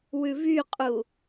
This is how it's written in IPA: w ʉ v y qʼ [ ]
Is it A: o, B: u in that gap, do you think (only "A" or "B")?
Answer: B